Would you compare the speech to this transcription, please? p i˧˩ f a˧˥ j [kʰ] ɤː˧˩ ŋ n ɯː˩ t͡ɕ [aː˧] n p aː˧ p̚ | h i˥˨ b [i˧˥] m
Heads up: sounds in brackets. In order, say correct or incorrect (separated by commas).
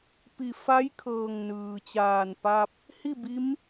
correct, incorrect, correct